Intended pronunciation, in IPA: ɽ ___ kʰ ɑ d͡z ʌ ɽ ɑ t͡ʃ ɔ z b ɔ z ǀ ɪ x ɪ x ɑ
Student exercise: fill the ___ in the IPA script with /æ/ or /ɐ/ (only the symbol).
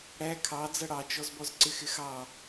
æ